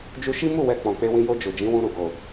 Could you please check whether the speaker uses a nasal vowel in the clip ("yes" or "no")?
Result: yes